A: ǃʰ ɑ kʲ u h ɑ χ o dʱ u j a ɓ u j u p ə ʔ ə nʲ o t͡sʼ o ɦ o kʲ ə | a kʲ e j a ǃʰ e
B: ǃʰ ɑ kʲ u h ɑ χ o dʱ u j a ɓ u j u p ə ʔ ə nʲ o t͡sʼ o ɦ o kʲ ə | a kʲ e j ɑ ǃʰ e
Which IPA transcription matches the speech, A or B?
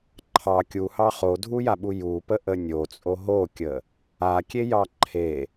B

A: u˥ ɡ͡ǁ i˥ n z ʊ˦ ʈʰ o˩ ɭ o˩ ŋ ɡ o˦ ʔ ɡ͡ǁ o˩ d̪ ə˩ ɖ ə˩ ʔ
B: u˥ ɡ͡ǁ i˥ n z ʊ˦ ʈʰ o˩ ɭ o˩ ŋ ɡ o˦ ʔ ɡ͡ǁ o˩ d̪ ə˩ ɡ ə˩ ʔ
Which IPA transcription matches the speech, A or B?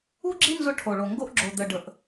A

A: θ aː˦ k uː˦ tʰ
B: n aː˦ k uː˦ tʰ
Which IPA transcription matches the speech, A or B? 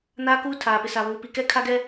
B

